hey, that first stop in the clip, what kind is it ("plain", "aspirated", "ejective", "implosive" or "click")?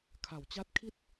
aspirated